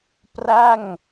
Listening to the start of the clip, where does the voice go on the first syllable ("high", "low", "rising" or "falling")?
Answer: falling